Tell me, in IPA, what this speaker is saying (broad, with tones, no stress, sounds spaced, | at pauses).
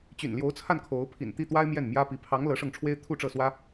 t͡ɕ y̰˨˩ n l j o˧˥ ʊ̯ t͡sʰ a˥˩ n kʰ o˧˥ ʊ̯ pʰ ḭ˨˩ n t̪ i˥˩ t̪ w a˥ ɪ̯ m j ɛ˥˩ n m j ä˥ p i˧˥ pʰ ɑ˧˥ ŋ l ɤ˧˥ ʂ ɤ˥˩ ŋ ʈ͡ʂʰ w e˥ ɪ̯ t̪ʰ u˥˧ ʈ͡ʂ ɤ˥˩ s w ä˥